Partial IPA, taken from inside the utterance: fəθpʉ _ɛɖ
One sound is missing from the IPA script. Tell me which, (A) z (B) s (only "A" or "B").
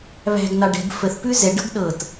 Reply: A